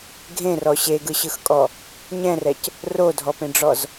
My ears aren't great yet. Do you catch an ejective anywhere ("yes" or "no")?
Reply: yes